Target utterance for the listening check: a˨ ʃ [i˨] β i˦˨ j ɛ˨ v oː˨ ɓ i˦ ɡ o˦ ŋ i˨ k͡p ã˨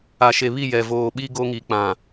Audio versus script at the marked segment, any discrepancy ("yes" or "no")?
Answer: yes